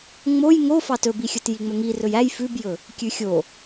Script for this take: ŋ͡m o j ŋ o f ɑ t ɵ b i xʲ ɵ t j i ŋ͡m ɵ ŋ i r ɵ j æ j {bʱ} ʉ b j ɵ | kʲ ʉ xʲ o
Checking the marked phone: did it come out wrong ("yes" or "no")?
yes